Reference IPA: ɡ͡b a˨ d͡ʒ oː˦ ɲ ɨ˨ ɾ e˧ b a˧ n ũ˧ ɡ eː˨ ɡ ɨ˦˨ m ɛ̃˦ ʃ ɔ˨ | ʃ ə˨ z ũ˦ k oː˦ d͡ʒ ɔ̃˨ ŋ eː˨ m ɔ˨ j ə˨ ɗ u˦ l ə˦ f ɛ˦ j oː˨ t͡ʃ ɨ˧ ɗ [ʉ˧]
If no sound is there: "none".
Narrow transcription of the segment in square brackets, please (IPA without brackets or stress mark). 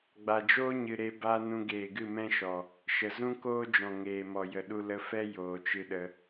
ə˧